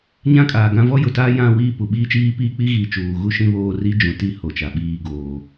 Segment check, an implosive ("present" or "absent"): present